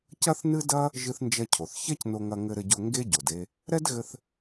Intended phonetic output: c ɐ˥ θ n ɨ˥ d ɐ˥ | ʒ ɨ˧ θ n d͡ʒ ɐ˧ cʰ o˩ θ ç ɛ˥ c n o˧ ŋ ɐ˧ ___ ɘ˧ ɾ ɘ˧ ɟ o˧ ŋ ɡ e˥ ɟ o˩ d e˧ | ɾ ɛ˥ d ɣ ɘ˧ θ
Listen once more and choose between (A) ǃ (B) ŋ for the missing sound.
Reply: B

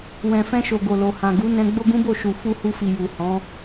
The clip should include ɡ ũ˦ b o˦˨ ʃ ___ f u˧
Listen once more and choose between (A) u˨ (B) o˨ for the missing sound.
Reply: A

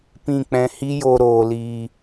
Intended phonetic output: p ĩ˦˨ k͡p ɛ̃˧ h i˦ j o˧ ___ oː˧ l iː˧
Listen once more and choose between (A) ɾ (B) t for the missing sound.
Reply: A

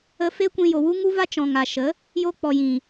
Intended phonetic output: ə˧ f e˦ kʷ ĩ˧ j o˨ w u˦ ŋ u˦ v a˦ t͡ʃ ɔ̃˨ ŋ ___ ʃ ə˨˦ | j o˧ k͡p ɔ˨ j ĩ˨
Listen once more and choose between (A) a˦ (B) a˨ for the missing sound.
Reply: B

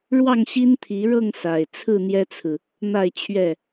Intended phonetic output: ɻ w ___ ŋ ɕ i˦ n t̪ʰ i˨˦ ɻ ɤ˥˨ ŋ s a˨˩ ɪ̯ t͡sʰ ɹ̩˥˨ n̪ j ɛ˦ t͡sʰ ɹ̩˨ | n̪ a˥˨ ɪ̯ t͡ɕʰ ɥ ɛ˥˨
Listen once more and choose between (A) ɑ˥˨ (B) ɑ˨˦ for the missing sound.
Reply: A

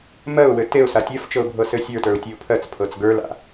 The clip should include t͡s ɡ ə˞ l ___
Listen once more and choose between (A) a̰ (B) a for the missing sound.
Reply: A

